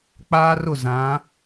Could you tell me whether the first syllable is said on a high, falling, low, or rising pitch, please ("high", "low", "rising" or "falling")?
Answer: high